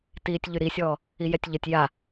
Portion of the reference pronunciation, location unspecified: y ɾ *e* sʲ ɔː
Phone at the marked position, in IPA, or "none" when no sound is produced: i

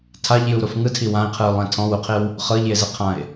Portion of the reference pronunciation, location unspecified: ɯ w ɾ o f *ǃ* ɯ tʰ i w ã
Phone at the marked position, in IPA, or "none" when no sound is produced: ŋ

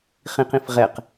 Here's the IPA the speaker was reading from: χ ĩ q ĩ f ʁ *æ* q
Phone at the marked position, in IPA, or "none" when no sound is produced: ɛ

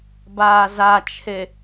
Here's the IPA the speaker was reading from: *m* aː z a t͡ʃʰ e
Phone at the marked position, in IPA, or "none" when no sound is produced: b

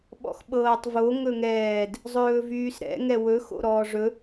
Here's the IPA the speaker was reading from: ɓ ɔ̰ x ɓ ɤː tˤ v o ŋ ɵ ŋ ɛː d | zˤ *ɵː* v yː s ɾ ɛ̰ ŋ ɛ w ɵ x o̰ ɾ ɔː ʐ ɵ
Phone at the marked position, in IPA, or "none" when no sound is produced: ɵː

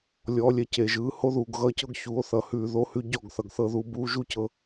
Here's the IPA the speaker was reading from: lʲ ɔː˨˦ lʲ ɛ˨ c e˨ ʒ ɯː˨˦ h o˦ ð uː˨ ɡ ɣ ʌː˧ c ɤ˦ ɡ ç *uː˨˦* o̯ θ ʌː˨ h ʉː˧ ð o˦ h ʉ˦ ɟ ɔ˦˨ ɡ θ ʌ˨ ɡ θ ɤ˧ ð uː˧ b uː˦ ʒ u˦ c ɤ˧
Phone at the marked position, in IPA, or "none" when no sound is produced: uː˨˦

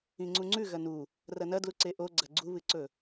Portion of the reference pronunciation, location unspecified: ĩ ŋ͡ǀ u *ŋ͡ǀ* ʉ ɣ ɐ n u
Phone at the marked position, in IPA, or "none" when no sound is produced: ŋ͡ǀ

